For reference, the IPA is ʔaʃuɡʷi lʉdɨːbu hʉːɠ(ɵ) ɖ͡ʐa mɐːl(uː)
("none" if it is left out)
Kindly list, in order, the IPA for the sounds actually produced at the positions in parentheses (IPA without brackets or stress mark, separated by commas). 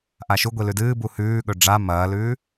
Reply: ɵ, ʉː